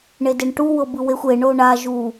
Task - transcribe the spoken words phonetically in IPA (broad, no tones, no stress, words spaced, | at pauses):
ɳedeɳʈu wɤbɯwexʷ e ɳoɳa ʒu